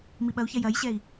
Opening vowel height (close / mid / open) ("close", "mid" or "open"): close